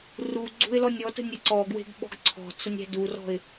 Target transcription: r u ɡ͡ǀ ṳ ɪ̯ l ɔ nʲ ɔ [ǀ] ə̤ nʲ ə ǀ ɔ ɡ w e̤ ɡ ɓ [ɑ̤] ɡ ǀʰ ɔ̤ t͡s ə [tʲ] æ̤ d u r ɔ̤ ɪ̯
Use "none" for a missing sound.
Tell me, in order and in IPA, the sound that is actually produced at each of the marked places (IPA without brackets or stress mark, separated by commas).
t, ɔ̤, nʲ